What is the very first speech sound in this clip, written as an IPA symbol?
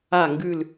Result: a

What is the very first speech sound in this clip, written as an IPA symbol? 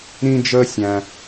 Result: ɾ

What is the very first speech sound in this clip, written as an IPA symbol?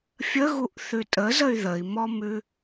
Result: fʲ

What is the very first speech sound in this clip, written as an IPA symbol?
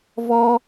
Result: v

